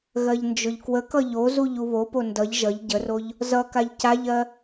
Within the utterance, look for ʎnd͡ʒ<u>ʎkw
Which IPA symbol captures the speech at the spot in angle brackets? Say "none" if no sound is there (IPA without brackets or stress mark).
ʊ